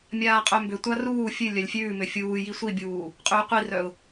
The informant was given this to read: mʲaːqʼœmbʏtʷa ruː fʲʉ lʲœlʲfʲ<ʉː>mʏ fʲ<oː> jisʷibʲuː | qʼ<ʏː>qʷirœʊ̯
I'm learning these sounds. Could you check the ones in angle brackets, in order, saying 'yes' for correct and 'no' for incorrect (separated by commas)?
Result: yes, no, yes